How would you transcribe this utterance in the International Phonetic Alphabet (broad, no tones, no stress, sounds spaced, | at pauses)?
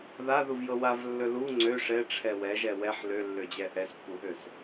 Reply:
ð a ð u v j ɤ w a v lː ɵ l u ŋ͡ǀ ø ʂ ɛ ʈ͡ʂʰ ɛ w ɛ ʒ ɛ w ɛ ħ l ø lː ø d͡ʑ ɛ ʔ ɛ s pː u ɦ ø s